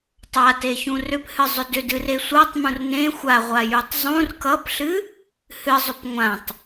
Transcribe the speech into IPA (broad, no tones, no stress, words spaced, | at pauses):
tˤateçũ rʏphɨzˤʏ dʏdɨre sʷatˤmũr nẽ xʷaʁʷajutˤ zˤũr kʌpɬɨ | hɨzˤʏp ŋʷãtˤ